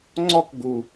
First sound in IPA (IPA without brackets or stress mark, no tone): ŋ͡ǀ